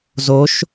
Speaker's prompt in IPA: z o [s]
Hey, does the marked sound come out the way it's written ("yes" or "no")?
no